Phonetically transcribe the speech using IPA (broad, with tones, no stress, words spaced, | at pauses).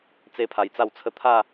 t͡se˦pʰa˧jt͡sa˥˧wt͡sʰə˥˧ t̪ʰa˥˧